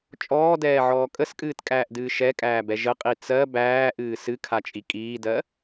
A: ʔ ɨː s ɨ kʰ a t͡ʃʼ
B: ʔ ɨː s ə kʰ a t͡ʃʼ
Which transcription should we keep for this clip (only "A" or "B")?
A